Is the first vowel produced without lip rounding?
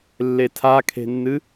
yes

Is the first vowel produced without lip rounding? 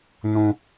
no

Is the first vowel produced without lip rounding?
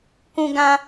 no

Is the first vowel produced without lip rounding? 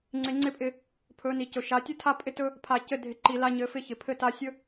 yes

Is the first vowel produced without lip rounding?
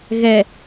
yes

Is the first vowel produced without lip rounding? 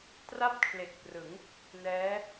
yes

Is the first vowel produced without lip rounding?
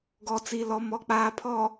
no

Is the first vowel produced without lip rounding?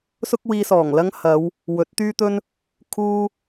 no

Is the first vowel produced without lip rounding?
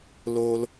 no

